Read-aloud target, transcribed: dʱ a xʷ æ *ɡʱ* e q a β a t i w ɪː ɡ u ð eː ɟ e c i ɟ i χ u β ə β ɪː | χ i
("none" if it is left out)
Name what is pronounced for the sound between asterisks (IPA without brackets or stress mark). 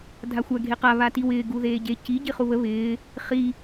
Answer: ɡʱ